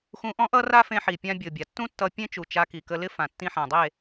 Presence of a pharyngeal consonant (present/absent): present